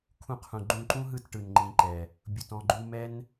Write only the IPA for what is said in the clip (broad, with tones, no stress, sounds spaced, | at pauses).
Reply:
kʰ ũ˧ qʰ ũ˨ ɡ͡ǃ ũ˧ ǃ ũ˦ ɦ ɯ˦˨ t ʈ ɯ˨ n ŋ͡ǃ ĩ˨˦ ǃ ɛ˨ | bʲ u˨ t ɔ̃˧ ɡ͡ǃ u˧ m ɛ˦ n